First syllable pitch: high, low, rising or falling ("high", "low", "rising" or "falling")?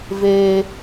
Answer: high